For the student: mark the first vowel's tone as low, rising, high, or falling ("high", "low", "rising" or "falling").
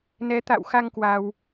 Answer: rising